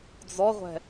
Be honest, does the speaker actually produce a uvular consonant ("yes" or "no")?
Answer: yes